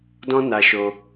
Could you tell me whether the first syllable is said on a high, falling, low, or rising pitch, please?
high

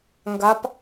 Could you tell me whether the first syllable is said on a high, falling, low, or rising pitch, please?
rising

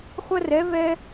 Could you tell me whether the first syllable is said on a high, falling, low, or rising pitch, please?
high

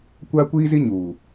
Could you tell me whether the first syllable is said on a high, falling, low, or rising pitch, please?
high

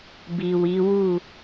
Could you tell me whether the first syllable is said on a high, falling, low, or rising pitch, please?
low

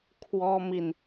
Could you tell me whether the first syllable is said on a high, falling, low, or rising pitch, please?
high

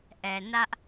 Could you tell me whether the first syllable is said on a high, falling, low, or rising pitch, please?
low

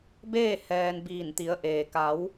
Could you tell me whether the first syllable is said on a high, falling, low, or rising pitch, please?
falling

